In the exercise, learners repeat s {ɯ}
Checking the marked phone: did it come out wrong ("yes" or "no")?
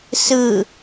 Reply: no